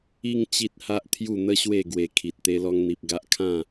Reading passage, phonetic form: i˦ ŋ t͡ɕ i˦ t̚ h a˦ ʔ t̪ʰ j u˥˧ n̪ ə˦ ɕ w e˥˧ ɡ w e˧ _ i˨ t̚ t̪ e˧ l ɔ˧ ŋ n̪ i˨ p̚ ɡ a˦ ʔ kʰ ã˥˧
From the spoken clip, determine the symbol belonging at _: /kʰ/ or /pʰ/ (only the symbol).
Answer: kʰ